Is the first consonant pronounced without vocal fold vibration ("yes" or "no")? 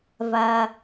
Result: no